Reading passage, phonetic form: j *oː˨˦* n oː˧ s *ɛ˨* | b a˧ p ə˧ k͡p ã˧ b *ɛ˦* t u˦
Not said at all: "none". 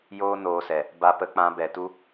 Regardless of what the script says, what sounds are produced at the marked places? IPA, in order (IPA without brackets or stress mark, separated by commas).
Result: oː˦, ɛ˨, ɛ˨